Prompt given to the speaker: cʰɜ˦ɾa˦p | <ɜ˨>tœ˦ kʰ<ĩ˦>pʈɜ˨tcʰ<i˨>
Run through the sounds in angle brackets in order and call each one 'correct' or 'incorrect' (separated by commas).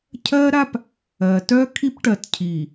correct, incorrect, correct